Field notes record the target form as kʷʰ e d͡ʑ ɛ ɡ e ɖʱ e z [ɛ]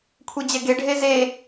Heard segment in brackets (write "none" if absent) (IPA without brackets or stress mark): e